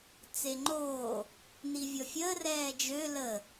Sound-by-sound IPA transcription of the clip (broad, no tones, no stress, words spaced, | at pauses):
t͡seŋ͡ǃoː | nivʲɔfʲəː rɛːd͡ʒø lə